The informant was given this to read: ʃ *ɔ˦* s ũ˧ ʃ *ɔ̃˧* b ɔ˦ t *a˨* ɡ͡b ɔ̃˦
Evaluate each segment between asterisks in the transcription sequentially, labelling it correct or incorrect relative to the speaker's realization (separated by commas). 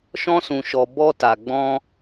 incorrect, incorrect, incorrect